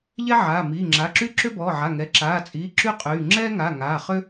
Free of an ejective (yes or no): no